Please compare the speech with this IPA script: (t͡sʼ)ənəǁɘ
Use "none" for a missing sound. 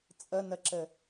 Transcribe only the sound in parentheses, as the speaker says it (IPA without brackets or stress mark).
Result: t͡sʼ